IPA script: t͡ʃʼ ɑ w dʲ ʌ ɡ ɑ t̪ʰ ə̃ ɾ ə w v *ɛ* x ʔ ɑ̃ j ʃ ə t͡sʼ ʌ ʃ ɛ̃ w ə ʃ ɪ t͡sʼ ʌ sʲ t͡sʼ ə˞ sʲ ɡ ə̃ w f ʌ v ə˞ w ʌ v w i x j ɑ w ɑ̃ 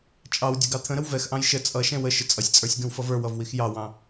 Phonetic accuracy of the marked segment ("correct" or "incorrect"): correct